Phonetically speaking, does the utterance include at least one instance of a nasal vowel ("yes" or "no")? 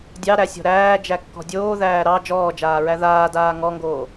no